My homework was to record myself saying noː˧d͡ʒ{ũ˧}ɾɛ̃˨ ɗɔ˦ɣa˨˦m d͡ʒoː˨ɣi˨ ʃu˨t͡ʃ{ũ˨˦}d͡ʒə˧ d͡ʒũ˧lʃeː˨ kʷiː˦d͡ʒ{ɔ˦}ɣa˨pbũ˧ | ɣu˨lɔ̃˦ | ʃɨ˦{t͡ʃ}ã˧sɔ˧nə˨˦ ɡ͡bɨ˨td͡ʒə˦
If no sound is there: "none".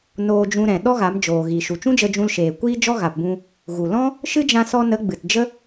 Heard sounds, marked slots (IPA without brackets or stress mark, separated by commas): ũ˧, ũ˦, ɔ˦, d͡ʒ